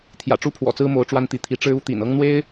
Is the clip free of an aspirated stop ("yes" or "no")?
no